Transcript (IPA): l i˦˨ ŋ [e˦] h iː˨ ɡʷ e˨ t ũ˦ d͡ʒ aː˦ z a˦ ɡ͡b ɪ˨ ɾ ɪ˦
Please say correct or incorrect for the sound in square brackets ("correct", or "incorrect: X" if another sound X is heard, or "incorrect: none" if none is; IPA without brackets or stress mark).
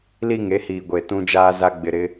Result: correct